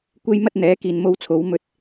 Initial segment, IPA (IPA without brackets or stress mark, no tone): kʷ